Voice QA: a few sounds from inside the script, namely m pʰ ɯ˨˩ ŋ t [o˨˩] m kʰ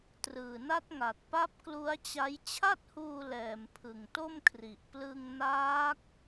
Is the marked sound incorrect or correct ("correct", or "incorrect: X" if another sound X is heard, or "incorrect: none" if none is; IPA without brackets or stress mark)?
incorrect: o˥˩